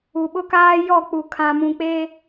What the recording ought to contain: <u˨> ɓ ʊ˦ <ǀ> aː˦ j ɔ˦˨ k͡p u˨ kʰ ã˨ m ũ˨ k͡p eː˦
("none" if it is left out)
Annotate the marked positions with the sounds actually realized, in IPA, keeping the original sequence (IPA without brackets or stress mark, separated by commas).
u˨, k